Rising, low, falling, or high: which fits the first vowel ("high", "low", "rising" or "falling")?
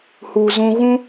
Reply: low